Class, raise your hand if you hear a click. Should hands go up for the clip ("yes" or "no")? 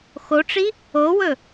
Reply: no